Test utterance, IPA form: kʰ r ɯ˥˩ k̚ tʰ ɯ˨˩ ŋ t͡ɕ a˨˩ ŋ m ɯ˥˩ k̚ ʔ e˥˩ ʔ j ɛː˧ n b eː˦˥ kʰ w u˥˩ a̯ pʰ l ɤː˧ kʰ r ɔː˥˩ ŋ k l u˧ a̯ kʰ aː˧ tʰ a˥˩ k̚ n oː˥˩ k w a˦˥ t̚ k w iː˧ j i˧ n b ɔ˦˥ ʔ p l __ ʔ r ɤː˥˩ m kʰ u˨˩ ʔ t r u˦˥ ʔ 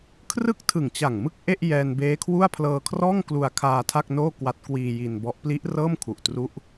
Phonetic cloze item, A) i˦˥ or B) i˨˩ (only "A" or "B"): A